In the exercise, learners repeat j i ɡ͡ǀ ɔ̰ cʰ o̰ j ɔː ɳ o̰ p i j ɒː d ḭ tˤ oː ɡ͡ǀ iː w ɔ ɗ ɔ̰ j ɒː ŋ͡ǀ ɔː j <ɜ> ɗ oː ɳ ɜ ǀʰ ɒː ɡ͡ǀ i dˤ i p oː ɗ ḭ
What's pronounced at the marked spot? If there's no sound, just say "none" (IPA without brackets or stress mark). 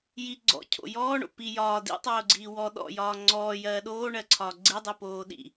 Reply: ɜː